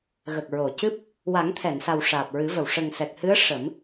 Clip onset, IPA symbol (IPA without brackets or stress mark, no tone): ɣ